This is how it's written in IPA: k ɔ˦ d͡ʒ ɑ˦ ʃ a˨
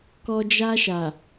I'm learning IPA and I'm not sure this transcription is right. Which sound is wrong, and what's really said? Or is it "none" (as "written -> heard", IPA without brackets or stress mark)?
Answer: ɑ˦ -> a˦